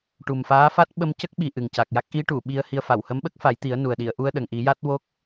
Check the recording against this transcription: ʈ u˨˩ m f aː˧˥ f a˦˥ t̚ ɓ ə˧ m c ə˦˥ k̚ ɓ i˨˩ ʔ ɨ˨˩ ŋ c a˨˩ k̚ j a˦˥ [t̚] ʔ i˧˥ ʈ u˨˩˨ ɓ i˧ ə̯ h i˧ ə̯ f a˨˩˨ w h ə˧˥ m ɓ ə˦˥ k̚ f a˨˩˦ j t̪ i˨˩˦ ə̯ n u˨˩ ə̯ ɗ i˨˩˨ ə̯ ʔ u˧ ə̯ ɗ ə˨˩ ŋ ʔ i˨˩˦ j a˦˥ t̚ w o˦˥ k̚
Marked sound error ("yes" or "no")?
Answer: yes